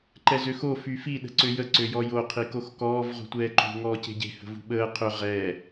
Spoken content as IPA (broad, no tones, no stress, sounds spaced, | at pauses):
ǃ ɛ z ø x o f y f i ɗ ə̤ ǀ ø j ə ǀ ø j ɔ j o qʰ i k o x k ɔː v ʁ ṳ tʷ ɛː ǃ ṳ ŋ ɔː c e̤ ɟ e̤ h ə̤ v ṳ ɓ əː qʰ ø ʁ ɛː